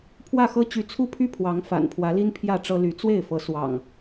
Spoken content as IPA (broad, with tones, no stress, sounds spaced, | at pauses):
pʰ w ä˥˨ x ɤ˦ t͡ɕ y˨˦ t͡sʰ u˦ pʰ y˦ pʰ w ɑ˨˦ ŋ f a̰˨˩ n pʰ w ä˨˦ l i˦ n pʰ j ä˥˨ ʈ͡ʂ ɤ˦ l y˨˦ t͡s w e˥˨ ɪ̯ f ɤ˨˦ s w ɑ̰˨˩ ŋ